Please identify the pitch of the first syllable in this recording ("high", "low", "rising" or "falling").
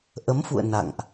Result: rising